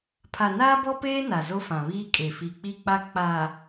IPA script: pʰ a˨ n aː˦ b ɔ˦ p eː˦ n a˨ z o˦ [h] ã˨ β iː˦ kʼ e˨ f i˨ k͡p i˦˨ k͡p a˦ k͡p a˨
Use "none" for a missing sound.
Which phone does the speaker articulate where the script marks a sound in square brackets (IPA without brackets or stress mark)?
f